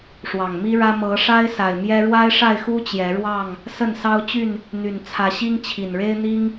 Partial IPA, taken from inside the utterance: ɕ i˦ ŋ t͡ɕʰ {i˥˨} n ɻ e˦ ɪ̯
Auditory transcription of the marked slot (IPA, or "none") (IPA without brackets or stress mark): i˨˩